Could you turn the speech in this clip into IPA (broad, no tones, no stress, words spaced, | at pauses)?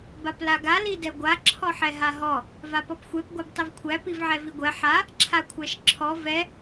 baplaɡa lidɛɡʷa ǁʰɔħɛɦaɦɔ | vapɔpxʷɛp ɡʷabtˤivkʷʰæ pivʕɛviɡʷɛ ħa | ǁʰakʷʰæʃǁʰɔ vɛ